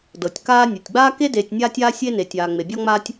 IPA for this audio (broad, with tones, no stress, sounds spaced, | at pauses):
d ɤ˩ tʲ k aː˦ nʲ u˩ tʲ ɡ͡b aː˥ k e˥ d eː˨ tʲ nʲ aː˦ tʲ aː˦ sʲ e˥ n e˨ tʲ aː˨ ŋ͡m e˨ bʲ ɔ˥ ŋ͡m aː˥ tʲ